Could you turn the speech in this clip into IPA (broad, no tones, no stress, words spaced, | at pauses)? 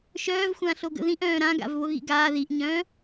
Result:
ʃœːvxʷãɬoɡə̰ ðĩʔœ̃ː ɾãɡa̰v βoɣḭɡaː ðiʔɲœ̃ː